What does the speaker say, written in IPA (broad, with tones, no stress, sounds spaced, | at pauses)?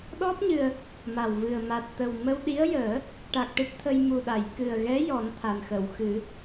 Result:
ɗ ɔ˦˥ p̚ ɲ ɨ˨˩ ə̯ | m a˨˩ w v ɨ˨˩ ə̯ m a˨˩ t̚ t̪ ə˨˩ w m ə˧ w ɗ i˧˥ ə̯ j əː˨˩˦ | ʈ a˨˩ k̚ ʈ ɨ˦˥ t̚ t̪ʰ ə˧ j m u˨˩ ɗ a˨˩˨ j k ɨ˨˩ ə̯ ɣ ɛ˧˥ j ɔ˨˩˦ n t̪ʰ a˨˩ n x ə˨˩˨ w x ɨ˨˩˦